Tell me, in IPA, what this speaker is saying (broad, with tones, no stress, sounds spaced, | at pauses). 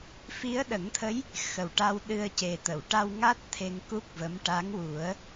f i˧˥ ə̯ ɗ ə˨˩˦ ŋ t̪ʰ ə˧˥ j | x ə˨˩ w ʈ a˧ w ɗ ɨ˧ ə̯ c e˨˩ t̪ ə˨˩˨ w ʈ a˧ w ŋ a˦˥ t̚ t̪ʰ e˧ ŋ k u˦˥ k̚ v ə˧˥ m ʈ a˧˥ ŋ w u˨˩˦ ə̯